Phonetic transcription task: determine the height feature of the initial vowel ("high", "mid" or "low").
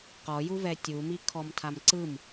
mid